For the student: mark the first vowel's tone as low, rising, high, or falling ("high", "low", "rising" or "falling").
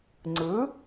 rising